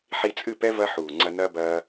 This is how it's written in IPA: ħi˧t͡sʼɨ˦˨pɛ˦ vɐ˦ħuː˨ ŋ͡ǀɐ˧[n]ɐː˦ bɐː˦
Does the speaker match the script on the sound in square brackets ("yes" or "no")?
yes